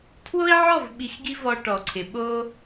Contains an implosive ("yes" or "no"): yes